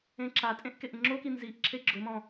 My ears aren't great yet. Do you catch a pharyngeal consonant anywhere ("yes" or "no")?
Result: no